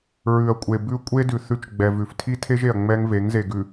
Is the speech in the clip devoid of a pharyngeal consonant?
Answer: yes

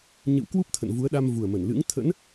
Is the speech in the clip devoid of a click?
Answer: yes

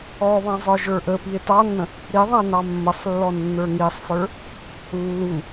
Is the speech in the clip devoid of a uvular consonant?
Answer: yes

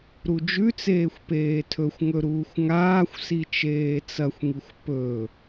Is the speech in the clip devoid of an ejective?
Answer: yes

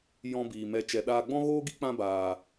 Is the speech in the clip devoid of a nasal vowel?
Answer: no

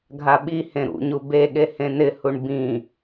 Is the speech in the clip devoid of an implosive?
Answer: no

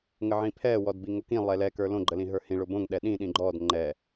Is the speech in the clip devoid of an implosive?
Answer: no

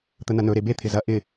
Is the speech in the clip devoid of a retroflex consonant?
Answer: yes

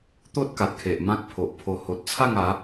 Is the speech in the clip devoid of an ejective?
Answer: yes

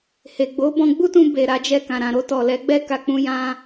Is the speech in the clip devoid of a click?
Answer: yes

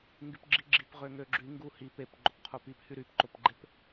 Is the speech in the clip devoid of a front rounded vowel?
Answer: no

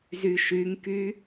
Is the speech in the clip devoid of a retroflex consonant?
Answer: yes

